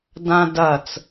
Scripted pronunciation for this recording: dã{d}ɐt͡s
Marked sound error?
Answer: no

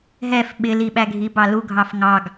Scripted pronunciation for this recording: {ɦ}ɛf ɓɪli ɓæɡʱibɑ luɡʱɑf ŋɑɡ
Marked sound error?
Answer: no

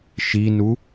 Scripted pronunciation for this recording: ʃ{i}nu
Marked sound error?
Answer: no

